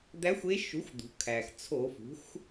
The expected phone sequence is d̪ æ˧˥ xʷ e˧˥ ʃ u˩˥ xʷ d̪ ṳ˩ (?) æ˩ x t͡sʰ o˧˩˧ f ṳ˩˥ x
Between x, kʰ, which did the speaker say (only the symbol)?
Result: kʰ